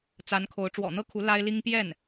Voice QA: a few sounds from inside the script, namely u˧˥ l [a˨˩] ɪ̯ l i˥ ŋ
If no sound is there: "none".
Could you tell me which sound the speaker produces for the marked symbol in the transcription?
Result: a˥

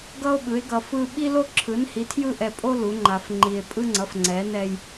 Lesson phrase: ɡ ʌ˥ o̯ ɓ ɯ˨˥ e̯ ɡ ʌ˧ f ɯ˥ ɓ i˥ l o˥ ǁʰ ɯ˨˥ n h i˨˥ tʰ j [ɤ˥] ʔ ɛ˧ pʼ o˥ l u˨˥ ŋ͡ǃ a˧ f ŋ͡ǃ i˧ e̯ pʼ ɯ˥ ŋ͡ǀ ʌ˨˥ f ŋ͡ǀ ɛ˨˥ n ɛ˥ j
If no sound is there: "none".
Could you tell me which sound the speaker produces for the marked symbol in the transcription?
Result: ɯ˥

